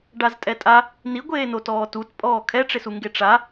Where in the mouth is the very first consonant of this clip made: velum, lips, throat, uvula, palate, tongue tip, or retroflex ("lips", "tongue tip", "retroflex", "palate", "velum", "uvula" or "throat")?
retroflex